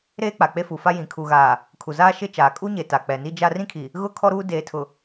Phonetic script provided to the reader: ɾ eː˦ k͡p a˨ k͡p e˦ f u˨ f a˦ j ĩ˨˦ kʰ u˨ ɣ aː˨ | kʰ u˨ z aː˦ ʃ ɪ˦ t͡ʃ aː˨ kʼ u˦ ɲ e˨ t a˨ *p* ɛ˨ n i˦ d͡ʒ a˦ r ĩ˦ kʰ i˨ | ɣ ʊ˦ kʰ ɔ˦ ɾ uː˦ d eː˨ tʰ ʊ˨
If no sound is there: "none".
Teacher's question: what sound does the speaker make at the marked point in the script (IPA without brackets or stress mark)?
k͡p